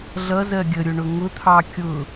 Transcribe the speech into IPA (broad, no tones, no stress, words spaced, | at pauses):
ɮʌzɜ ɡʲəɾʲʊɳʊ ŋʊt̪ʰɑ kʲʊ